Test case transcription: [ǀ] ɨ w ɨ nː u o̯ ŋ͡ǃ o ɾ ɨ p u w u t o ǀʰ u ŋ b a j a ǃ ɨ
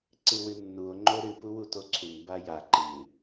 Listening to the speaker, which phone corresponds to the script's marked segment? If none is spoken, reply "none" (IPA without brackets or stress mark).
ǀ